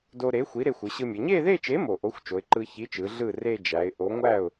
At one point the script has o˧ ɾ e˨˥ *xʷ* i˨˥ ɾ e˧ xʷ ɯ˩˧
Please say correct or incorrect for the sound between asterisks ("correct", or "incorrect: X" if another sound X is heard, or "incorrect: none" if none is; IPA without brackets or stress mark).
correct